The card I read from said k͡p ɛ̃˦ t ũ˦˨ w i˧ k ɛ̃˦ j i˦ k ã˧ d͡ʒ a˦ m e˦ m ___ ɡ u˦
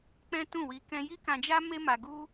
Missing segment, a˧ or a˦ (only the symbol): a˧